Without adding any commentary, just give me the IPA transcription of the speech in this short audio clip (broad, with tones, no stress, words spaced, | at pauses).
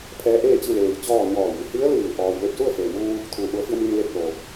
pʰɛː˧˥ʔeː˥˨t͡ɕi˥˨ leː˧˩jt͡ɕɔː˥˨ ɲɔː˧˩ji˩hi˧˥ə̯lɯː˧˩ ʔɔː˧j le˥˨p̚ su˥˨ə̯feː˩muː˧ | t̪ʰuː˩˧ʔu˩˧ə̯fi˧ə̯ mi˧nle˧p̚lo˩